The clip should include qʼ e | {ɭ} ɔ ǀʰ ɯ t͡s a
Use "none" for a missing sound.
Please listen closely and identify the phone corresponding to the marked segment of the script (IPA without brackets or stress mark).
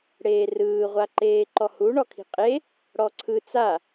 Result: ɽ